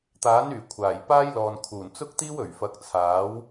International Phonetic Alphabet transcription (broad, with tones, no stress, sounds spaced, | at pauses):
t̪ aː˨˥ n yː˨˩ kʷʰ aː˨˩ j p aː˥ j l ɔː˨ n kʰ uː˨˩ n t͡s ʊ˥ k̚ t̪ iː˥ w ɵ˨˩ ɥ f ɐ˨˥ k̚ t͡sʰ aː˨˥ w